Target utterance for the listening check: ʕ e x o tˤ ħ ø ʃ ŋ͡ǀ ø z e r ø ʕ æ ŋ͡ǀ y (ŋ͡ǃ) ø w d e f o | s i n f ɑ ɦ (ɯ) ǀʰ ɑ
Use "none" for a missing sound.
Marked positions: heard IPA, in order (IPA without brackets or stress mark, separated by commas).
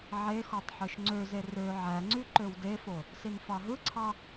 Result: ǃ, ɯ